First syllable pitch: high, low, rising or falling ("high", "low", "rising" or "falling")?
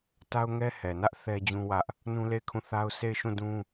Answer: high